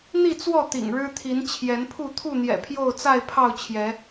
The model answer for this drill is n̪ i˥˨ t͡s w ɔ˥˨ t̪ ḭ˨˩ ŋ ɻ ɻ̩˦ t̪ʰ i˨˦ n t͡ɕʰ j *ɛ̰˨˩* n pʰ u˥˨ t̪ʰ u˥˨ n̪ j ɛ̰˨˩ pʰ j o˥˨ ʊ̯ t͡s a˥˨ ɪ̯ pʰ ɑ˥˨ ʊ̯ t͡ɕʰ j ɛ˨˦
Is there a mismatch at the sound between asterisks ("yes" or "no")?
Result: yes